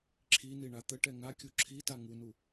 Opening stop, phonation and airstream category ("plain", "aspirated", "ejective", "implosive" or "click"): click